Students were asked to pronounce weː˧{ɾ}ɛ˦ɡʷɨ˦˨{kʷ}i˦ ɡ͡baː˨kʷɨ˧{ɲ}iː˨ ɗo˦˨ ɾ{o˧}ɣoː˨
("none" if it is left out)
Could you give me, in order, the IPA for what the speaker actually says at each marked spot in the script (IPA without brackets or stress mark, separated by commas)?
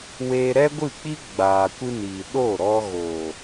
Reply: ɾ, k͡p, n, ɔ˧